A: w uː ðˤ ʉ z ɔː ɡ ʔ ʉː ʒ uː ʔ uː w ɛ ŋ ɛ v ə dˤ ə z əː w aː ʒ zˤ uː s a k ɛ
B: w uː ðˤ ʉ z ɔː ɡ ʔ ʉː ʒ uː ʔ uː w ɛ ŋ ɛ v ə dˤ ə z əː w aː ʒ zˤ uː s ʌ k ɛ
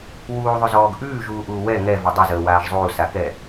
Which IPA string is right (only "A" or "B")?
A